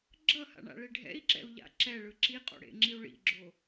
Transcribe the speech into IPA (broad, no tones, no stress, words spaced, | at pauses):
ɡ͡ǁʌha̰ɳa̰ɭe ɖʱɛ̰i̯ǁɛ̰u̯ʎa̰ ǁɛɭɯ ǁiqʼo̰ɽḛŋ͡ǁiu̯ ɭḭɡ͡ǁo